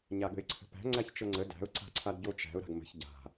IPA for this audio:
ɲaɠə̤ɪ̯ǀʰə̤pæ̤ ŋ͡ǀæçt͡ʃɤŋ͡ǀə dæ̤ʊ̯ ǀa̤ǀʰadɟot͡ʃæ̤ʊ̯ ɾa̤ɡmə̤ç ɟa̤

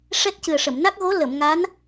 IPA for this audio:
ʂɛ˦˥t̚cɨ˨˩ə̯ʂə˨˩˨m na˦˥k̚ɣo˧˥ lə˨˩˨mŋa˧˥n

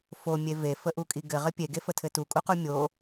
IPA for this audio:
fo mʲeve fəʔukʼiɡɘ ʁɘpʲe ɡefətʰɘtu kʼuqumʲo

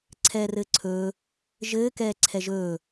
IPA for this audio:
ǀʰɛːrɘːǀʰɵː | ʒɘː kɛːǀʰɛʒɵː

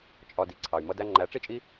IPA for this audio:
t͡ʃʼɒ˧di˨ǀʰɑ˨y̯ mʌ˧dæ˧ ŋ͡ǃæ˨˦ʈ͡ʂi˦˨t͡ʃʼi˦

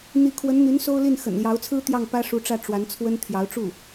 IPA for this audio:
n̪i˧˥kʰwə˧˥nn̪y˧˥n so˥ʊ̯li˥˩n xə̰˨˩nljɑ˧˥ʊ̯t͡sʰɹ̩˥ t̪jɑ˥˩ŋpä˥ʂu˧˥ʈ͡ʂä˥˩ ʈ͡ʂwa˧˥nt͡sʰwə˥n t̪ʰjɑ˧˥ʊ̯ʈ͡ʂu˥˩

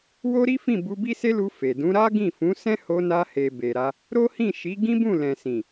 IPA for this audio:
wo˦ɾi˦fĩ˦˨ bu˧ bi˦se˦lu˧ fe˨dũ˨˦ ɾa˦ɡĩ˦˨fũ˨˦sɛ̃˦ ho˧na˧he˨ be˨ɾa˧ | ɾo˦hĩ˦˨ʃi˨˦ ɡĩ˦bũ˦˨lɛ̃˨sĩ˨

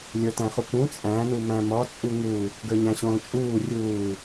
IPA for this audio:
lʲə˞tæ̃χukũ t͡sʼæ̃ numæ̃mɔ t͡sʼuŋu | ɡə˞ɲæ̃ɕõːt͡ʃʼuː rʲuː

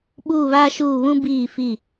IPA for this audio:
ɓuː˦˨βaː˦ʃuː˦˨ βũ˦biː˦˨fi˦˨

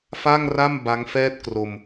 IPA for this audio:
fa˥˩ŋra˥˩m ba˦˥ŋfɛː˥˩t̚kro˧m

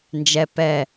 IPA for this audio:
nd͡ʒɛ pɛ

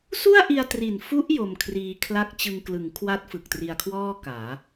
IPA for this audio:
su˥˩a̯ʔi˧a̯tri˨˩n fu˦˥ʔ jo˧mkʰriː˧kʰla˥˩k̚ t͡ɕɯ˧ŋklɯ˩˦ŋkʰwa˦˥t̚ fɯ˨˩k̚tri˧a̯kʰwɔː˥˩ kaː˩˦

